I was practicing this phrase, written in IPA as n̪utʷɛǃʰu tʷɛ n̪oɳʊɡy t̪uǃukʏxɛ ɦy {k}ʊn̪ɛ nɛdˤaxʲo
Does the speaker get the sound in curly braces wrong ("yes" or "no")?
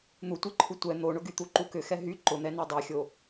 yes